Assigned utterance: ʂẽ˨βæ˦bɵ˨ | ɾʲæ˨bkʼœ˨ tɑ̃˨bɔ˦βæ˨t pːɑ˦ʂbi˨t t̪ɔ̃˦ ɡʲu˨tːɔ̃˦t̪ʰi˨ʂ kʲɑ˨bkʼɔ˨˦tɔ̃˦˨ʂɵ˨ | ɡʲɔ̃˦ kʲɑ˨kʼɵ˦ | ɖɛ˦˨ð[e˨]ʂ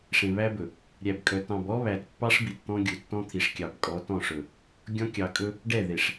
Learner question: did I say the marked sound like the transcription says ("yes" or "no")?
yes